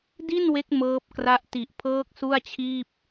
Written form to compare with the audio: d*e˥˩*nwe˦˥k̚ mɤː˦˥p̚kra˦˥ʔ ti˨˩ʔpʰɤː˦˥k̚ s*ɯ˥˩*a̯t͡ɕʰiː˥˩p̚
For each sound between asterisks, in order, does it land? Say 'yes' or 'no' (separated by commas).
no, no